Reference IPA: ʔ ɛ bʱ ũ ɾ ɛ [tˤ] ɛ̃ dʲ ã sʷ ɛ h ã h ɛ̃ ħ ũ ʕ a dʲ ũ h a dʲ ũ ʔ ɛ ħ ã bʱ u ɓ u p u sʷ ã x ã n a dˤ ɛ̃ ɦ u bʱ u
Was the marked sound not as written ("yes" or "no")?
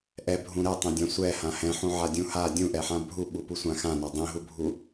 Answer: no